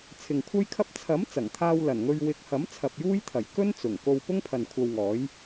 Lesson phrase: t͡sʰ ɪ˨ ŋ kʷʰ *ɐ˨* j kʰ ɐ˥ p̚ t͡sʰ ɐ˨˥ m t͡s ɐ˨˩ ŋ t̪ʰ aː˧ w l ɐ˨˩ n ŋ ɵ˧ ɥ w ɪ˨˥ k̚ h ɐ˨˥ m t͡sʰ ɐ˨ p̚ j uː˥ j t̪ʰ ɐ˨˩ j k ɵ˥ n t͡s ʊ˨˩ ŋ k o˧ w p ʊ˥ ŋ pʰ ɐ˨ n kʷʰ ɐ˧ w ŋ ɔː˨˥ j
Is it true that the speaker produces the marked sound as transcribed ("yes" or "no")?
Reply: no